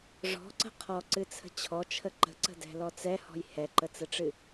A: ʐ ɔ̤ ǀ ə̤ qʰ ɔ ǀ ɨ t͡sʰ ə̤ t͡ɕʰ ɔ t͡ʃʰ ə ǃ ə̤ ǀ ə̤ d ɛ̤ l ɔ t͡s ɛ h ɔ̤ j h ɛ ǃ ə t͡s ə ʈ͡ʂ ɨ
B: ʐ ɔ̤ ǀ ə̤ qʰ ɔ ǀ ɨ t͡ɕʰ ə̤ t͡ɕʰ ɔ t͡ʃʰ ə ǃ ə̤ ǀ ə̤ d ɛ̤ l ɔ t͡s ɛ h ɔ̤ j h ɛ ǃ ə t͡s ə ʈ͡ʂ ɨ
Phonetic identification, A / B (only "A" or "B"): A